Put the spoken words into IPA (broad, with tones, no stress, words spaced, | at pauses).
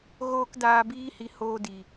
ɣoː˦k daː˧biː˦ hi˧hoː˦di˨